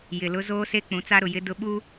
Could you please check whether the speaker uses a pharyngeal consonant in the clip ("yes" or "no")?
no